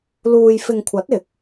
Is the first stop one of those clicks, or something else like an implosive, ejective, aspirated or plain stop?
aspirated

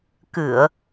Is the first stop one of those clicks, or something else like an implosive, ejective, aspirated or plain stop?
plain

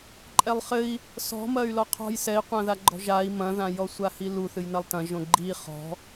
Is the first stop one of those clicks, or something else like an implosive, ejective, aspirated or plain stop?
click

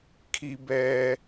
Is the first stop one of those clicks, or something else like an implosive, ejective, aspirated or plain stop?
aspirated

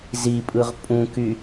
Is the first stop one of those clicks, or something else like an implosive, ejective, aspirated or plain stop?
ejective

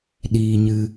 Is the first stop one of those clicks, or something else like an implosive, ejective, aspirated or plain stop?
implosive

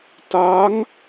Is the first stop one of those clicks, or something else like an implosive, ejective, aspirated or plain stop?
plain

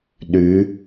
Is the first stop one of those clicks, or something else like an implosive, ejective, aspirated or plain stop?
implosive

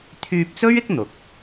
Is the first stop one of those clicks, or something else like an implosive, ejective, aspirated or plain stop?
aspirated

